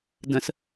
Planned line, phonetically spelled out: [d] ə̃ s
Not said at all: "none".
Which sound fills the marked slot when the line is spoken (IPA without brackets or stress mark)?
d